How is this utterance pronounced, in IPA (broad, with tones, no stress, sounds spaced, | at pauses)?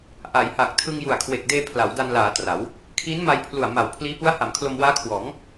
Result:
ʔ a˩˦ j h a˨˩ k̚ tʰ ɯ˧ ŋ j u˨˩ a̯ kʰ w e˨˩ k̚ d eː˧ pʰ l a˩˦ w d a˧ n l aː˩˦ t r a˩˦ w | kʰ iː˦˥ n m a˧ j pʰ l u˨˩ a̯ m a˨˩ w pʰ l iː˦˥ p u˦˥ a̯ h a˩˦ m kʰ l o˧ m w aː˦˥ kʰ w ɔː˩˦ ŋ